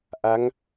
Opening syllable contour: rising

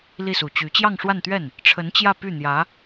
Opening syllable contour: falling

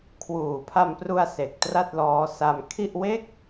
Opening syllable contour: low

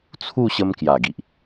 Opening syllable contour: falling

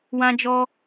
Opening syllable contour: high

